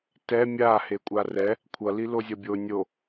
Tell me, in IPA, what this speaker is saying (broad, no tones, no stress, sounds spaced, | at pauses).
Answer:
t ɛ mʲ a h e kʷʼ a r ɛ | kʷʰ ʌ l i l o zʲ ʌ bʲ o nʲ o